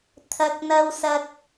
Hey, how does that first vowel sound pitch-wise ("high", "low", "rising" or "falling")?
low